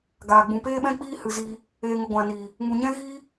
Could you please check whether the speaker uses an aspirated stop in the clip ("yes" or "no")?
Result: no